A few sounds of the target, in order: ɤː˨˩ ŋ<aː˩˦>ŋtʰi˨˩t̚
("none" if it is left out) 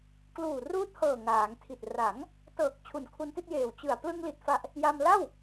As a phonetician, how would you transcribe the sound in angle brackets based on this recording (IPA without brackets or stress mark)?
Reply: aː˩˦